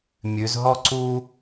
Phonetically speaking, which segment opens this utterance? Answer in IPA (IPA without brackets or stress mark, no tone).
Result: mʲ